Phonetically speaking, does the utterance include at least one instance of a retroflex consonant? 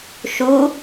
no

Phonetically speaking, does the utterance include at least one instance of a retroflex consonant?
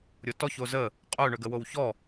yes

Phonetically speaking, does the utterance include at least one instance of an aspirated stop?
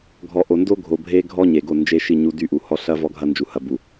no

